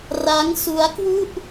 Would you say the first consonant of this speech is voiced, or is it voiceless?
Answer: voiced